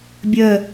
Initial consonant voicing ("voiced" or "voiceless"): voiced